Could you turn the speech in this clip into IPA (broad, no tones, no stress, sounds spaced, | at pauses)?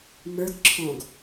m ə˞ ɡ ǁʰ ɔ̃ ɡ